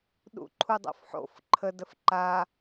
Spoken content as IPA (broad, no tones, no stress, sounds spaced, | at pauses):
ɗ ṵ ǃʰ u dˤ o̰ f ħ o̰ f ǃʰ ə d ə f ǃ a